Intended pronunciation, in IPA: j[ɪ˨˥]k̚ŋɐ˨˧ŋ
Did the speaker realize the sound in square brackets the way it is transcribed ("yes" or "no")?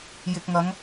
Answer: no